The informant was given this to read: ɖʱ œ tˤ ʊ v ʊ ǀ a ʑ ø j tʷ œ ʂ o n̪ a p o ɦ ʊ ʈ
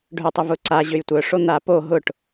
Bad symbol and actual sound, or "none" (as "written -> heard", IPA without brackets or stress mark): none